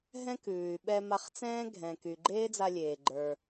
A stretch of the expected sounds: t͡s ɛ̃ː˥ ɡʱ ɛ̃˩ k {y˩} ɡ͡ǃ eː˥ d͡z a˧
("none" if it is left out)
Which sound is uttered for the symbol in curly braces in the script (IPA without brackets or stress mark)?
y˩